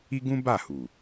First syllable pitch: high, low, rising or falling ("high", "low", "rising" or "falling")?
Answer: high